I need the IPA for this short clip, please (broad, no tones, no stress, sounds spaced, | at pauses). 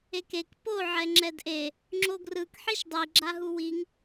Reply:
e k e k p o ʕ ɛ ŋ͡ǁ ɛ d ʔ e | ŋ͡ǁ o ɡ r ɯ k ħ i ʃ dˤ i ɡ͡ǁ a ɦ u w i ŋ